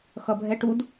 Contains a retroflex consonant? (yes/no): yes